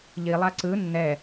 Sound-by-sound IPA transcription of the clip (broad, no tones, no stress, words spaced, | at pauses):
ʎilˠa ǀɯ nːɛ